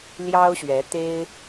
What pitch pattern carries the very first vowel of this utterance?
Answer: high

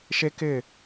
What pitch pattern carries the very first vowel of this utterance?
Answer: high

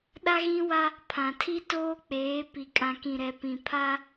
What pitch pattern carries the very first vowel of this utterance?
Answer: high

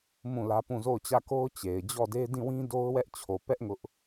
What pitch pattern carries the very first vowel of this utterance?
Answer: falling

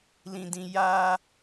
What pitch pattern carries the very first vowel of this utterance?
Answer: low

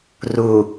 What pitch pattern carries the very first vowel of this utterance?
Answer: low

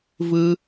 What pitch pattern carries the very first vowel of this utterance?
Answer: high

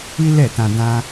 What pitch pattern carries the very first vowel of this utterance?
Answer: high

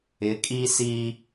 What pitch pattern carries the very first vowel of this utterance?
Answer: rising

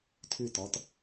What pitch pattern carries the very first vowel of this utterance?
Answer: falling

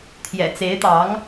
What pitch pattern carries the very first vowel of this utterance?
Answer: low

